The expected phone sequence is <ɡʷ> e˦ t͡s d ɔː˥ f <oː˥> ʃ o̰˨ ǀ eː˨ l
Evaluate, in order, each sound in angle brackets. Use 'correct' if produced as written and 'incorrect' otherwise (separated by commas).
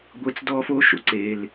correct, correct